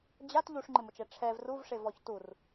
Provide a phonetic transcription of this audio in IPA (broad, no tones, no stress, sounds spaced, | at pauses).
d͡ʑ a t ʎ u ʂ ŋ͡ǃ ɪ m ʊ t͡ʃ ɛ ʈ͡ʂʰ ɛ v r u v ʂ e v ɔ ç t u r